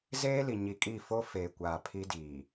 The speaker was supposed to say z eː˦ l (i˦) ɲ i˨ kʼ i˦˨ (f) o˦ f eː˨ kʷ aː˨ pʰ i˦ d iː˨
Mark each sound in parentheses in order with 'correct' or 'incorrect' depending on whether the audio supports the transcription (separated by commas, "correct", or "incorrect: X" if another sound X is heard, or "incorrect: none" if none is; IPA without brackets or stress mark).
incorrect: i˨, correct